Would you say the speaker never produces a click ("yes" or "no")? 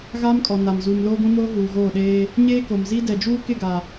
yes